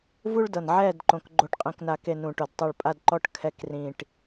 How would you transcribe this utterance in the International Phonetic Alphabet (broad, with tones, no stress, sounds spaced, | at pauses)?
v u˦ ɭ d ɤ˨ n ʕ ɛː˦˨ d ǃ õ˨ k ɡ͡ǃ o˨ ʈ qʼ ĩ˨ k n a˨ k e˨ n ũ˨ ʈ o˨ d tˤ i˨ ɭ pʼ a˨ d ǃ ɔ˨ ʈ kʰ ɛ˨˦ k r ĩː˨ ʈ